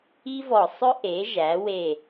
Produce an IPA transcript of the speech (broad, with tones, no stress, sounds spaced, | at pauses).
i˥ v ɔ˧˩ sˤ ɵ˥ ʔ e˩˥ ʒ æ˩˥ w e˧˩